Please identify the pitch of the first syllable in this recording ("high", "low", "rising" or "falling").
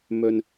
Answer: low